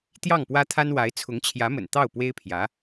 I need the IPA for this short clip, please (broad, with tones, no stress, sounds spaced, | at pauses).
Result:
t̪ j ɑ˥˩ ŋ p w ä˥ t̪ʰ a˥ n w a˧˥ ɪ̯ t͡sʰ ʊ˧˥ ŋ t͡ɕʰ j ä˧˥ m ə̰˨˩ n t̪ ɑ˥˩ ʊ̯ p w e˥ ɪ̯ pʰ j ä˧˥